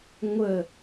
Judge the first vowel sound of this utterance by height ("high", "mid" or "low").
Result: mid